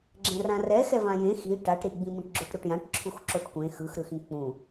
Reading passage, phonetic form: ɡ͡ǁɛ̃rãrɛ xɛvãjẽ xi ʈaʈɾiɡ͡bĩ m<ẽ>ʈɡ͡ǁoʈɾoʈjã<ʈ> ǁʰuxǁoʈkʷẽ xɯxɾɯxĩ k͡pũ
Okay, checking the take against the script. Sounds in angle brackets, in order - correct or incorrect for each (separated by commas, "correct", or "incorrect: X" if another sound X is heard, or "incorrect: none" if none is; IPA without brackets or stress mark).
incorrect: ĩ, correct